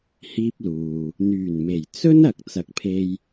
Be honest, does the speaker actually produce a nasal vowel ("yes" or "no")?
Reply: no